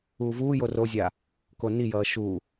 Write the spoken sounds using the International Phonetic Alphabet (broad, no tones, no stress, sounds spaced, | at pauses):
uː v uː j o r o zʲ aː | k o n i j ʌː ʃ uː